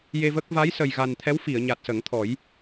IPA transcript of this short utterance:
j e˧ v ə˦˥ k̚ v a˧˥ j s ə˨˩ j ɣ a˨˩ n t̪ʰ ɛ˧˥ w f i˨˩˨ ə̯ ɲ a˨˩ t̚ s ə˨˩˦ ŋ t̪ʰ ɔ˨˩˦ j

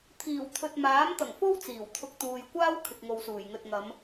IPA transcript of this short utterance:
t̪ʰ iː˨˩ w t̪ʰ ɵ˨ t̚ m aː˨˥ m t̪ ɐ˨˩ ŋ f o˥ w t͡s iː˨˩ w t̪ʰ ʊ˧ k̚ t̪ uː˨ j kʷ aː˥ w kʰ ɪ˨ k̚ ŋ o˨ w s uː˨˩ j ŋ ɵ˨ t̚ ŋ ɐ˨˧ m

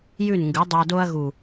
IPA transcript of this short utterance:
j ʉ˦˨ n ŋ ɡ ʉ˨˦ dˤ u˨ ɐ̯ d o˧ ɐ̯ ɣ u˨

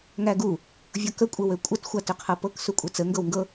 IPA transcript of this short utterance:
ŋ æ ɡ u | vʲ ɤ k ə kʷʼ ə w ø kʷʼ ə t xʷ a t ø qʰ ɤ p ɤ k s u kʷʼ ɛ t͡s ə ŋ ɡ ɤ w ŋ ɡ ɤ

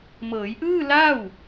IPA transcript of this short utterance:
m ɤː˩˦ j ʔ ɯː˥˩ l aː˥˩ w

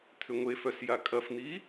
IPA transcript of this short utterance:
t̪ʰ ʏ ŋʷ e f œ s j a kʼ ɐ f n̪ iː

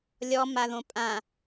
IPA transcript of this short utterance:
lʲ ɔ m a ð õ pʼ ã

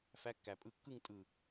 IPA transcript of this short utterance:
f æ˨˦ kː æ˩ pʼ ɯ˧˩ kː ɯ˥˨ ŋ tʼ ɯ˧˩

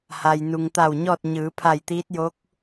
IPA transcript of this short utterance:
h a˩ j n u˩ ŋ t̪ a˧˩ w ɲ ɔː˥˨ t̚ ɲ ɯː˩˧ pʰ a˧˩ j t̪ iː˧˥ t̚ j o˧˥ k̚

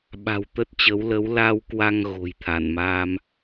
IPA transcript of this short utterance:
ɓ a̤˨˩ w t̪ ə˦˥ t̚ t͡ɕ ə˨˦ w l ə˨˦ w l a˧ w k w a˧ ŋ ɣ o̤˨˩ j t̪ʰ a˧˩ n m aː˧ m

